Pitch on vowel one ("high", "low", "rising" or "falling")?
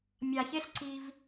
low